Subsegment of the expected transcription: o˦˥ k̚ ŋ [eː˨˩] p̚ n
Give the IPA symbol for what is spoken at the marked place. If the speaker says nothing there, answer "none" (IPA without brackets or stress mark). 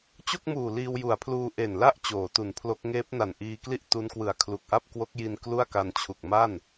eː˦˥